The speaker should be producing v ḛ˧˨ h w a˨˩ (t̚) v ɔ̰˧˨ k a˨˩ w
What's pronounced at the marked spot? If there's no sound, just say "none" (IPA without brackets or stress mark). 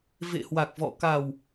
k̚